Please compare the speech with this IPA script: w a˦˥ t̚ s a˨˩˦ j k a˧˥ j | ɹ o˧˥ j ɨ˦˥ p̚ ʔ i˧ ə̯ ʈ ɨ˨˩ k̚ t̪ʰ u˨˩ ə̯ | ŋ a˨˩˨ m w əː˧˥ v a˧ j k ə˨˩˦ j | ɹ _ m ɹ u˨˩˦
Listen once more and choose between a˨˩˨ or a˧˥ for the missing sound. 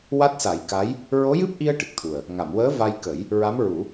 a˧˥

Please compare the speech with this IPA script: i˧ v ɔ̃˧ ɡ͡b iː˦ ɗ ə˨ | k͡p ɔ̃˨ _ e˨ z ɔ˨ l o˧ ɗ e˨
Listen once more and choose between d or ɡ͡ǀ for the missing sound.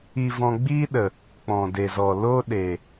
d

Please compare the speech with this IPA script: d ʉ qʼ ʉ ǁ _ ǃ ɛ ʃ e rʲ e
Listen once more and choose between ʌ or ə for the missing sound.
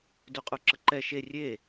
ə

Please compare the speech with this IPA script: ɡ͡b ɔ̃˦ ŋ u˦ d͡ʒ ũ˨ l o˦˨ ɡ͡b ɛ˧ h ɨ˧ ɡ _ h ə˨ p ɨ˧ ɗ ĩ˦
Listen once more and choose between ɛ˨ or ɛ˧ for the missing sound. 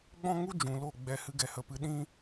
ɛ˨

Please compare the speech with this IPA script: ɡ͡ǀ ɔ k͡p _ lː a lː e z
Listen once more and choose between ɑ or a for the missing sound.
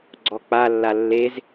a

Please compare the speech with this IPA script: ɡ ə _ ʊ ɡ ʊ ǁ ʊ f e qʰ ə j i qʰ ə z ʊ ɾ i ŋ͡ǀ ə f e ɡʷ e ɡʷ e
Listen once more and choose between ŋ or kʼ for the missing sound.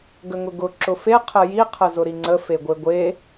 ŋ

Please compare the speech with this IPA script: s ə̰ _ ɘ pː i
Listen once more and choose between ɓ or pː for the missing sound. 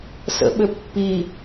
ɓ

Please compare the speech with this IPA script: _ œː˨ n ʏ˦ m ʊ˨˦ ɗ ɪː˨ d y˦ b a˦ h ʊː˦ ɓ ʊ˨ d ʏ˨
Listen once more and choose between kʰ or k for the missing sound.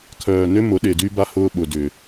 kʰ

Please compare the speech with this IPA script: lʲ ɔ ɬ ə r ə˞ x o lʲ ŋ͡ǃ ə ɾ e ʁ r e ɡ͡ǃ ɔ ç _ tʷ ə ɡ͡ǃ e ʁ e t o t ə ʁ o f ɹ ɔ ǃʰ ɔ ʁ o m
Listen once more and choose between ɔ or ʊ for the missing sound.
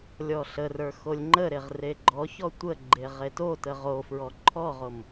ɔ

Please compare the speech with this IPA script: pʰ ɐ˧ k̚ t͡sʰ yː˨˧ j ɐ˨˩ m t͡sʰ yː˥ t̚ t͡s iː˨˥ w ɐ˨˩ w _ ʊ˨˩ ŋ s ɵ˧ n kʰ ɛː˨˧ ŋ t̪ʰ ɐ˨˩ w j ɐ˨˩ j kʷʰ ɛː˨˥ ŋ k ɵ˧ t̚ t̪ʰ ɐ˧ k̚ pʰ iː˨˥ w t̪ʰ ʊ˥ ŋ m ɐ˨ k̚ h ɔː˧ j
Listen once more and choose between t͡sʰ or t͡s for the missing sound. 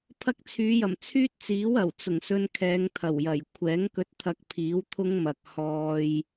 t͡s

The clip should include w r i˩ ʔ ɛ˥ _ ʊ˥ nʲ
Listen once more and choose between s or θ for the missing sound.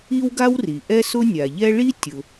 s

